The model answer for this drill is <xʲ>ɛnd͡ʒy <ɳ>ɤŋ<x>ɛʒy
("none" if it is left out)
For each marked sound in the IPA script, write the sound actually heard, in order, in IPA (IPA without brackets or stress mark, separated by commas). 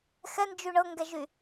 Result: x, ɳ, ɡ